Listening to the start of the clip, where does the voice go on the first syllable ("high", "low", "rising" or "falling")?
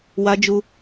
high